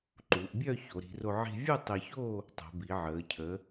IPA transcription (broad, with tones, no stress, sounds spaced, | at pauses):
ǃ u˩˧ ʔ bʲ œ˥˧ ç o˩˧ ɾ i̤˩˧ r o˧ ʕ i̤˧ vʲ u˥˧ tˤ e˧ ç o˥˧ | tˤ o̤˩˧ b i˩˧ ʕ əː˩˧ cʰ ə˩˧